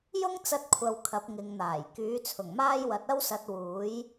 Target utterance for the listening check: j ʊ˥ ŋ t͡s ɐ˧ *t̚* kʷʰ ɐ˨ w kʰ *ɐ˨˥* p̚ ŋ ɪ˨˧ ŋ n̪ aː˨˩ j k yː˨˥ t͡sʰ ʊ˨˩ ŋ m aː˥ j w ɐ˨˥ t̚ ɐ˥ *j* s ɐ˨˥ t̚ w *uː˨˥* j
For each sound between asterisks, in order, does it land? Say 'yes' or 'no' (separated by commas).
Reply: yes, yes, no, yes